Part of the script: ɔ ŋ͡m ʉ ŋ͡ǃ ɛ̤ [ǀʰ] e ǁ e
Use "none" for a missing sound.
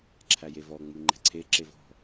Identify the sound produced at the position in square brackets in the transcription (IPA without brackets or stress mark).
ǀʰ